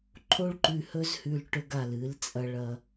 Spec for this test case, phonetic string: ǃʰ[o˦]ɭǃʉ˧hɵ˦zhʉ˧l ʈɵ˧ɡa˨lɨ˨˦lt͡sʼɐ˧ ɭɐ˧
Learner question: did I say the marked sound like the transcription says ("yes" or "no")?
yes